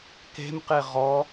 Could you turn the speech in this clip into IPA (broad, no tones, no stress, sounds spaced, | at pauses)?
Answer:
k e̤ m q e ʁ ɔ